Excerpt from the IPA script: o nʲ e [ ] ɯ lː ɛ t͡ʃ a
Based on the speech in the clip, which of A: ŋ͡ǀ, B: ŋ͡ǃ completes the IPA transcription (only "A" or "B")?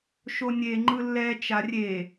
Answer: B